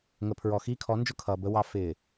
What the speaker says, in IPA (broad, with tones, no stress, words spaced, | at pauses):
ŋə˨pʰɹɔ˨ xiː˦kʰɔ˨˦nd͡ʒʊ˦˨ kʰʌː˨bə˦wɑ˦ fɪː˨